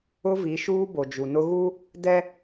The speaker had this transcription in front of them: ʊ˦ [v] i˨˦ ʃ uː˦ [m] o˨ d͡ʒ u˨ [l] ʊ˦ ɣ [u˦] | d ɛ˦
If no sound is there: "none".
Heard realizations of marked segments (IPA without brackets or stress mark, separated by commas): v, b, n, u˦